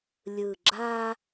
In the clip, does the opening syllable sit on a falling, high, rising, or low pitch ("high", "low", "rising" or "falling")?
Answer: low